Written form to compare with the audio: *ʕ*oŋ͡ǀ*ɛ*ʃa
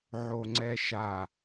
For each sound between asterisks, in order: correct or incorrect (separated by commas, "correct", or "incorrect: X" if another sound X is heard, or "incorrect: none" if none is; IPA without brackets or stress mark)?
correct, correct